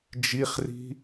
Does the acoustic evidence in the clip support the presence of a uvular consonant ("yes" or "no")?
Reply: yes